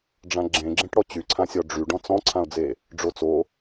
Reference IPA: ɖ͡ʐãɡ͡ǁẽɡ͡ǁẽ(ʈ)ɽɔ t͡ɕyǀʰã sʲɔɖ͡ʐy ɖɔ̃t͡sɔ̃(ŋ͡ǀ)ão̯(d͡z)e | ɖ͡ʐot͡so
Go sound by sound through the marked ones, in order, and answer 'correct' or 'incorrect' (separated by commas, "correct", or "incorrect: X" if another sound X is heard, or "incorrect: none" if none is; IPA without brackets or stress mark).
correct, incorrect: ǀʰ, correct